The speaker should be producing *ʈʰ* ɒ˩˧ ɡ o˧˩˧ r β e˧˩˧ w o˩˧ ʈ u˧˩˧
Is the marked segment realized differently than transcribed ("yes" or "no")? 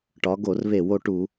yes